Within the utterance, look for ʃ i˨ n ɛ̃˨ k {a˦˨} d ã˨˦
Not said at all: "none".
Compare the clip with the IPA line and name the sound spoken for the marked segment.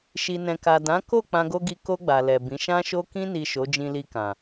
a˨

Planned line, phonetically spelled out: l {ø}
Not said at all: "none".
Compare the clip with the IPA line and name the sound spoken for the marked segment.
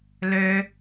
ø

